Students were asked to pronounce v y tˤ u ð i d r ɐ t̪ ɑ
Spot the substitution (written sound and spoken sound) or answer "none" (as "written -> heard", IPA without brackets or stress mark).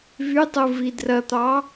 ð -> v